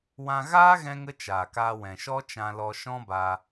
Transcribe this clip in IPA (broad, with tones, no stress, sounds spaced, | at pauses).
w ã˧ ɣ aː˦ ɣ ɛ̃˧ ŋ ə˧ t͡ʃ aː˨ k aː˧ w ɛ̃˨ ʃ ɔ˦ t͡ʃ ã˧ l ɔ˧ ʃ ɔ̃˦ b aː˧